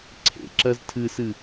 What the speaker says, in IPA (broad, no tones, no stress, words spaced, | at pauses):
ǀʰḛǁɜz tʰɨsɨ